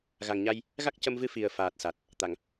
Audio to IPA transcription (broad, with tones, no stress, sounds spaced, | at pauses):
ɣ a˨˩ ŋ ɲ a˧ j | ɣ a˦˥ k̚ c ə˧ m v ɨ˧˥ f i˨˩ ə̯ f aː˨˩ t̚ s a˨˩ t̚ | t̪ a˨˩˨ ŋ